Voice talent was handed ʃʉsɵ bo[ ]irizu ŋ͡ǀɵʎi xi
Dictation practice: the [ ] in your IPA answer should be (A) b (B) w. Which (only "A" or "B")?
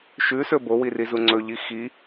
B